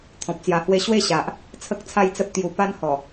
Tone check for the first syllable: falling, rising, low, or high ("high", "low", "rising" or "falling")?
low